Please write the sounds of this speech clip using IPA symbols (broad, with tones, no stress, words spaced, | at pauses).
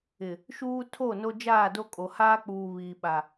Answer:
ɪ˨ | ʃuː˦tʰo˦˨no˦ d͡ʒaː˦˨do˦kʼo˨ haː˦k͡puː˨ βiː˨ɓa˨